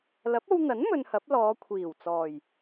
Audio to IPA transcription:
l ɐ˨˥ p̚ o˧ w n̪ ɐ˨˥ n m ɵ˧ n h ɐ˨˥ p̚ l ɔː˨˧ kʷʰ iː˨˩ w t͡s ɔː˨˩ j

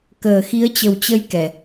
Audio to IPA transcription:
k əː˨˩ x i˨˦ ə̯ t͡ɕ ə˨˩ w t͡ɕ ə˧ j k ɛ˨˩

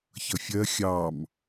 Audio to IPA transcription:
ç ʌ fʲ ɜ xʲ ɑ m

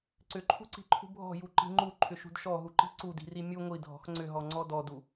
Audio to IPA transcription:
ǀ ʏ ǃʰ ṳ ǀ i̤ ǃʰ ṳ bʱ ɔ̤ j u ǃ i̤ ŋ͡ǃ u ǃʰ ʏ ʃ ṳ d ʃ ɔ ɦ u ǃ i̤ ǀ u d i̤ r i mʲ u ŋʷ i dʱ ɔ̤ x ŋ͡ǀ ʏ ɦ ɔ ŋ͡ǀ ɔ d ɔ d u

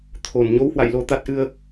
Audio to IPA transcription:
t̪ʰ o˨˩ n ɲ o˨˦ w h w a̰˧˨ j l o˧ t̪ a˦˥ t̚ ʔ ɨ˧ ə̯

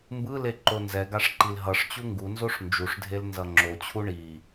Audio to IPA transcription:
m b ɯ l e ǃ o n z ɛ ɡ a ʂ ǃ i l ɦ ʌ ʂ t͡ɕ u ŋ ɡ u n z o ʂ n d͡ʒ u ʂ dʱ e l n z ʌ ŋ͡ǁ o t͡ɕʰ u ɳ i

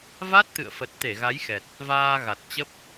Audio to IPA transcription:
v a˦˥ t̚ t̪ ɨ̰˧˨ ə̯ f ə˨˩ t̚ t̪ e˧˩ ɣ a˨˦ j x ɛ˨˩ t̚ | v aː˧ ɣ a˨˩ t̚ t͡ɕ ə˦˥ p̚

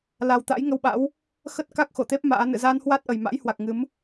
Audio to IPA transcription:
l a˨˩ w t̪ a̰˧˥ j ŋ ə˧ w ɓ a̰˧˥ w | x ə˦˥ t̚ k a˦˥ k̚ x o˧˩ t̪ e˦˥ p̚ m a̰ː˧˥ n ɨ̰˧˨ z a˧ n h w a˦˥ t̚ ʔ ə˨˩ j m a̰˧˥ j h w a˨˩ k̚ ŋ ɨ˨˦ m

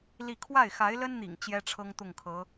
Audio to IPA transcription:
l i˥˧ kʰ w a˥˩ ɪ̯ x a˧˥ ɪ̯ l ə˥ n n̪ ḭ˨˩ ŋ t͡ɕ j ɛ˥ ʈ͡ʂʰ ɤ˥ ŋ t̪ ʊ˥˩ ŋ kʰ ɤ˧˥

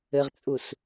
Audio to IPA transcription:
ɘ ʁ t͡sʼ u s

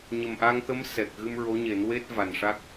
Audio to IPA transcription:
ɲ ə˨˩ m ʔ a˧ ŋ t̪ ə˧˥ m s ɛ˨˩ k̚ ɣ ɨ˧ m ɹ o˧˥ ɲ e˨˩˦ n w e˦˥ t̚ v a˨˩ n ʂ a˦˥ k̚

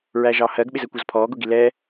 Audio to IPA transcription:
ɹ æ ʒ ɑ h ɜ ɡ ɓ ɪ z ɜ kʷ ɒ z pʰ ɔː ɡ ʊ ɡ i l ɛ

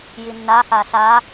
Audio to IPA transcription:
j i nː a h a s a

